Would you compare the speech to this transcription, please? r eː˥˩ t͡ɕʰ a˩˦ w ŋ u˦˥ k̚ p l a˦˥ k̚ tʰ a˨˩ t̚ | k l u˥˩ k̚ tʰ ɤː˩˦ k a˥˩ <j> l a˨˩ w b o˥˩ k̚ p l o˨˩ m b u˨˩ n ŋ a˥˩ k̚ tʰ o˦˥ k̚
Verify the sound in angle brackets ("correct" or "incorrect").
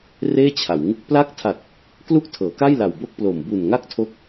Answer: correct